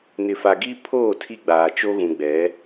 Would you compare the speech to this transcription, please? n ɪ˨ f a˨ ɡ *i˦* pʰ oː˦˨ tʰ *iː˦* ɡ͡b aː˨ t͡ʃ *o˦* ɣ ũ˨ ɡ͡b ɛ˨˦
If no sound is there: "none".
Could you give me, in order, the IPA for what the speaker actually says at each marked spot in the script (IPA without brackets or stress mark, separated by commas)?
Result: i˦, i˦, o˦